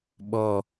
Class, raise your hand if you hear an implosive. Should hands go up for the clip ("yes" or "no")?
yes